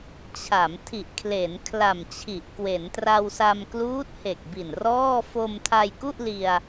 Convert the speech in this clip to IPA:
t͡ɕʰa˩˦m tʰi˨˩ʔkʰle˩˦n kʰla˨˩mt͡ɕʰi˨˩ʔkwe˩˦n tra˧wsa˧m kluː˦˥t̚he˨˩k̚bi˨˩n rɔː˥˩ fo˧mtʰa˧jku˥˩ʔ li˧a̯

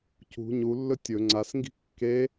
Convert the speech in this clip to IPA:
cṳ ɲulːɵ tʲɵ ŋ͡ǀasŋɡi̤ kːe

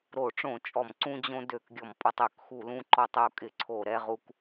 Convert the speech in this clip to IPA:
ɾo˧˩˧ʈ͡ʂõ˧˩˧t͡ʃʼɔ˧˩˧m ǀũ˧d͡ʑõ˧ dø˧˩˧kɡʲɔ˧˩˧mpʼɔ˧tˤ ø˧˩˧kxu˧˩˧lũ˧ǃɔ˧tˤ o˧kʼɪ˧˩˧ǀʰo˧˩˧ ɾɛ˧ʁu˧k

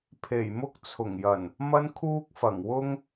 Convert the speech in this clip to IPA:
pʰe˨˩jmʊ˥k̚ t͡sʰʊ˨˩ŋjɐ˨˩n | mɐ˥nkʰuː˥k̚fɐ˨˩ŋ wʊ˥ŋ

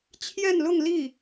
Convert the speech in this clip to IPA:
t͡ɕʰjɛ˥˧nlʊ˥˧ŋli˥˩

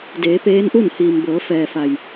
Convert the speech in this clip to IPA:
deː˩˧ peː˧˥nʔu˥˨n hiː˩mbɤː˩˧ fɛː˩fa˩j

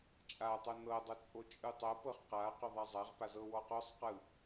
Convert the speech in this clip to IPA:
t͡ʃʼa tˤonɤdˤɤ t͡sʼot͡ʃʼɯtˤɤpɤχ qa qɔðˤazˤaʁpa zɤwɔqɔsˤqɯ

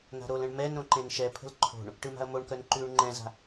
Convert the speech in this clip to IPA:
na̤ɾolə̃ɳ mɛn ɾõǃẽnʃɛpʰə̤l ǃʰo̤ɳ | ʈɯma̤ɐ̯moɳkœn ǃʉːɳŋ͡ǃɛ̃za̤

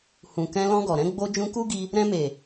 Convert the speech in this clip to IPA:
hũ˨kɛ̃˧ lɔ̃˧ɡɔ˨ ɾɛ̃˧ɡ͡bo˧ d͡ʒũ˧ku˦ɡi˧ | ɾɛ̃˧me˨

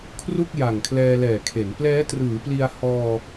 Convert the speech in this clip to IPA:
kʰru˥˩k̚ ja˨˩ŋkʰlɛː˧lɛː˨˩kʰe˩˦n plɛː˦˥trɯː˩˦pli˧a̯ hɔː˧

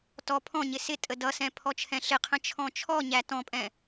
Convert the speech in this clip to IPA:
tɔ pʰɔ̃ɲɪ sɪtʼə dʌsɛ̃ pʰɔt͡ʃʰɛ̃ɬɪqʰə̃ t͡ʃʰɔ̃t͡ʃʰɔɲæ tɔ̃pʼɛ̃

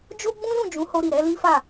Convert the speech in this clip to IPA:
d͡ʒo˦ɡ͡bũ˦ lũ˦˨d͡ʒũ˨˦ ho˧ ɾi˨ɾɛ˨˦ li˦fa˦˨

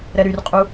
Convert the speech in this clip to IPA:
ɾɛɾyrqʼu

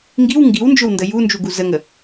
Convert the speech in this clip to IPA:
ŋɡiw ŋɡiwnd͡ʒɵwndə jund͡ʒuɡu zəŋə

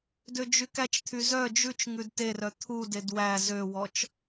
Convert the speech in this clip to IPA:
død͡ʒykæt͡ʃt̪ʰy zœ d͡ʒʉt͡ʃ ŋʉdterœ t̪ʰuded wæ zøwɔt͡ʃ

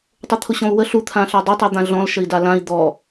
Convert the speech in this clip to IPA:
tˤʊt̪ʰʊɕɔ̃u̯wə ɬu t̪ʰãɬʌdˤʊ tˤɜd̪ãɮɔ̃l ʃəi̯dalãi̯ d̪ɔ

